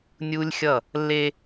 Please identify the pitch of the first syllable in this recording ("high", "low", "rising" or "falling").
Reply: high